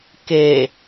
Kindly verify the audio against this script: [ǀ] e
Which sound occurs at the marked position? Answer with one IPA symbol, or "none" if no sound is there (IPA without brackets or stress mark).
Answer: k